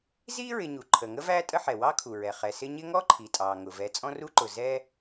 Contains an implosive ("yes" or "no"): no